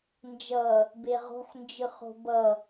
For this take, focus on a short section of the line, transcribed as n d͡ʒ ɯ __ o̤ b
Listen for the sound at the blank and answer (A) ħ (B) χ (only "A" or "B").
B